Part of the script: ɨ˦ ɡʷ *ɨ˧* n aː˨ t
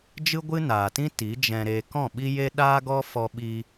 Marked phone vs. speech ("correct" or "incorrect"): incorrect